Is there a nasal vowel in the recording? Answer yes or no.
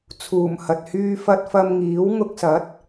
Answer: no